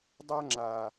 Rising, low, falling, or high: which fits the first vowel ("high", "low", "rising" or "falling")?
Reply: high